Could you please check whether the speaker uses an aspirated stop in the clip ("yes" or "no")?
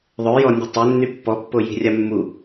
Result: no